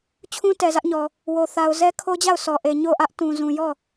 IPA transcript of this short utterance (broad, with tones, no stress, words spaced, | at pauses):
t͡ɕʰũ˦tɛ˨zä˦ʔɲɔ˨ | wo˨θa˨ʊ̯zɛ˦ kʰo˦d͡ʑa˦˨ʊ̯ sɔ˨ʔe˨ ɲo˦˨ ʔä˦ʔtũ˨zũ˨jɔ˦˨